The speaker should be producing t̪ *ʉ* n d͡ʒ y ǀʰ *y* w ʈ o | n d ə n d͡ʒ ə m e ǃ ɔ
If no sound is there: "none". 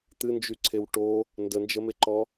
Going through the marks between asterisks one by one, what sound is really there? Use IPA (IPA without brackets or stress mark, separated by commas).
ɨ, e